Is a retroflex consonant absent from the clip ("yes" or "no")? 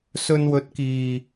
yes